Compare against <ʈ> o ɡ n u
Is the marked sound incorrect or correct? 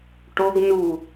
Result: correct